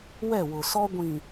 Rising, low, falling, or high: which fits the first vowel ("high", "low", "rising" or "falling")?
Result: falling